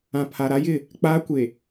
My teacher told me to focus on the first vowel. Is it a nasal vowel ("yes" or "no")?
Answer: yes